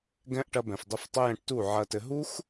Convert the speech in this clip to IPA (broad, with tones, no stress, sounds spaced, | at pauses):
ɡ ɛ̃˦ ʔ ʈ ɐ˧ b ɛ̃˨ f dˤ ɘ˧ f tˤ ə˦ j ɛ̃˧ ʈ t u˦˨ ʕ ɐ˧ t ɘ˧ ɦ u˦ x